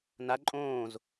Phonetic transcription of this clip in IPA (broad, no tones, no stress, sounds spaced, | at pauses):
n a ǃʼ õː z